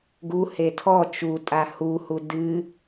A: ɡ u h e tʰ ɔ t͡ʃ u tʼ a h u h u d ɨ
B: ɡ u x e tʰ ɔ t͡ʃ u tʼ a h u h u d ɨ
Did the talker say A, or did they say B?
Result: A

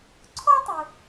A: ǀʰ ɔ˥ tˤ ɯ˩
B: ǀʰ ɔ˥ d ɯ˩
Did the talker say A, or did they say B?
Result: A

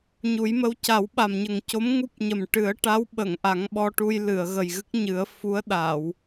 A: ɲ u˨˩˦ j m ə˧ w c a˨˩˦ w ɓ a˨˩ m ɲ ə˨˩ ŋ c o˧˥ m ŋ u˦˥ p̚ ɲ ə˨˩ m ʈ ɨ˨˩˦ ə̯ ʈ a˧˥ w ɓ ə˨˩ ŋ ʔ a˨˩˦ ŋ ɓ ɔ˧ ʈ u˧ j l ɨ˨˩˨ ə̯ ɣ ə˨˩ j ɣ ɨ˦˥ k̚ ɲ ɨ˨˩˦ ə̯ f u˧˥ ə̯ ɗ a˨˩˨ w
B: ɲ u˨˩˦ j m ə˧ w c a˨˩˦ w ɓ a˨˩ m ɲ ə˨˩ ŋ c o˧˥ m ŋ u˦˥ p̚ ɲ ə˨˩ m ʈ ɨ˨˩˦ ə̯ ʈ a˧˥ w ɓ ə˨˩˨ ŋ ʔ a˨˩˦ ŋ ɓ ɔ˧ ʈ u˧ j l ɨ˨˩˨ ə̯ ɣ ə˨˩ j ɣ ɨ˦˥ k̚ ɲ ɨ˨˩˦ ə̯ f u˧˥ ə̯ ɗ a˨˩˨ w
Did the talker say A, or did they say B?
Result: B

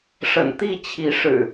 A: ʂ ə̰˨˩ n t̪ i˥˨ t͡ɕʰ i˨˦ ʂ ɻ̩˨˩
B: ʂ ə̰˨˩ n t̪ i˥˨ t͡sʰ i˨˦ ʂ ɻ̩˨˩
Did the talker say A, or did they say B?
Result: A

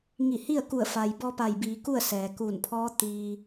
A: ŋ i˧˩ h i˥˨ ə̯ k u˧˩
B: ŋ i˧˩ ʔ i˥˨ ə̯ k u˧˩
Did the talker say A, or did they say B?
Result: A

